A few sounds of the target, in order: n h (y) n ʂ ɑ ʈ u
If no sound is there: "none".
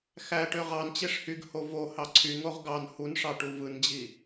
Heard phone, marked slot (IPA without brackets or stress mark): u